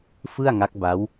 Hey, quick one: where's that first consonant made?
lips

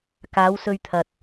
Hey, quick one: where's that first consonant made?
velum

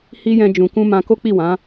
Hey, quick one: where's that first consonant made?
throat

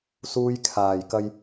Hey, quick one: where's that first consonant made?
tongue tip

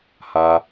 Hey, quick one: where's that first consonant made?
throat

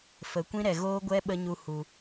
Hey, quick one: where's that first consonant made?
lips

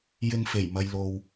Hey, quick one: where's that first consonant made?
palate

